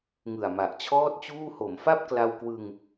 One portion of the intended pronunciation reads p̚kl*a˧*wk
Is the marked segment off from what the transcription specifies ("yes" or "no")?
no